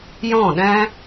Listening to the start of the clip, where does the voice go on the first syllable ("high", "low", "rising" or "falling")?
falling